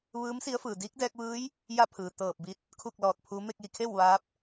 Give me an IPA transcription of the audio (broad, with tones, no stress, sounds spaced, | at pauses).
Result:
ʋ ɯː˧˥ m s i˧˥ ə̯ f ɯː˩ d iː˧˥ k̚ d ɛː˧ k̚ ʋ ɯː˧˥ j | j a˥˨ pʰ ɯː˩ t̪ ɤː˧˩ p̚ b i˧˥ t̚ | kʰ u˥˨ k̚ l ɔː˧˩ t̚ pʰ u˧˥ m e˥˨ k̚ j i˧˩ kʰ e˥˨ w ʋ aː˧˥ p̚